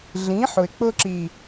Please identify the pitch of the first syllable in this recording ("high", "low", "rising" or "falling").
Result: rising